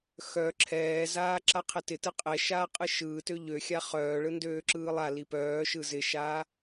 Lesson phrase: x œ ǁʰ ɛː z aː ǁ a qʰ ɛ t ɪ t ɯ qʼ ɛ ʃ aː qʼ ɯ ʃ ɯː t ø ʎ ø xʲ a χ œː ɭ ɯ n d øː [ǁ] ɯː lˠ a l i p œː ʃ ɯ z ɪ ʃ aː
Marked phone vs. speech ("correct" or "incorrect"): correct